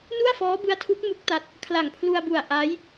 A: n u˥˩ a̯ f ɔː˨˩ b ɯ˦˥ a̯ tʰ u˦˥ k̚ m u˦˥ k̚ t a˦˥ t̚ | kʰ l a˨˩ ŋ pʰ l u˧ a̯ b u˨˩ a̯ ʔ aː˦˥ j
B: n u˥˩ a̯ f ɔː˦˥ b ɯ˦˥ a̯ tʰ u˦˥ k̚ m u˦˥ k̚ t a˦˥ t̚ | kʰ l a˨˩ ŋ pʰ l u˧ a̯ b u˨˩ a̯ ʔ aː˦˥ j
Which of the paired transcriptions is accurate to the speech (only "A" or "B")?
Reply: B